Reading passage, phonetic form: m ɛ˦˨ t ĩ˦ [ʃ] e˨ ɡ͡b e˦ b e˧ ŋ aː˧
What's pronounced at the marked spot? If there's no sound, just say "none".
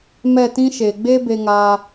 ʃ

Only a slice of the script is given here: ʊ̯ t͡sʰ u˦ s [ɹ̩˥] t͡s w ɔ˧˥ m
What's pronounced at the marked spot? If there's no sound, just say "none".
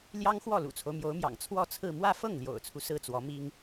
ɹ̩˥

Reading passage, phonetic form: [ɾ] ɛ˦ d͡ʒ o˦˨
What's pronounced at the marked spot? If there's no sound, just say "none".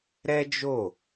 ɾ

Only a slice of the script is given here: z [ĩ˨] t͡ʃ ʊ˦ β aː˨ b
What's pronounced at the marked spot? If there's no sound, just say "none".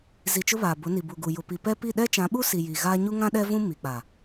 i˨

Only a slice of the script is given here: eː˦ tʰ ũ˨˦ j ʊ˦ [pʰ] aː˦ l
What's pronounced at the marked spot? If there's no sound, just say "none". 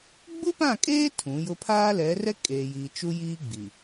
pʰ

